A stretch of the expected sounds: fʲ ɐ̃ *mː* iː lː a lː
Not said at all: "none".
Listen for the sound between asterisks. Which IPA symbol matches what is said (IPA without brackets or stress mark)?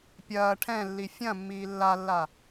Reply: mː